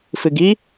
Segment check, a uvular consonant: absent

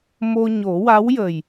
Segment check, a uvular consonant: absent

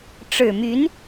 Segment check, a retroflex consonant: present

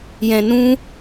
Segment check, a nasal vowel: present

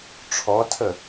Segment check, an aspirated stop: present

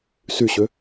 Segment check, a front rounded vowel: present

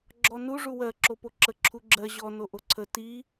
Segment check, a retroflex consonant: present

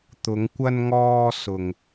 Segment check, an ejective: absent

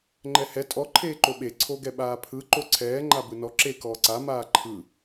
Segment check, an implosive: present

